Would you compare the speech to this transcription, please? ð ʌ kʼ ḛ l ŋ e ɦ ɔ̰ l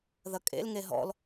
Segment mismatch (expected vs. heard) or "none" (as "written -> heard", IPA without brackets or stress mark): none